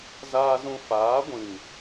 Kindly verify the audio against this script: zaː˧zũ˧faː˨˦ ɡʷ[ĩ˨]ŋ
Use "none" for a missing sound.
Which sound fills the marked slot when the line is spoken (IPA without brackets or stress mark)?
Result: ĩ˨